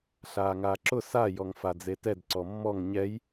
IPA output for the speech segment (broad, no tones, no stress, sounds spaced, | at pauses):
ɬ aː ŋ aː ǁ ʊ s a j ɔ ŋ f a d͡z e t ɛ d ǀ ɔ mː ɔ ŋ ɲ ɛ j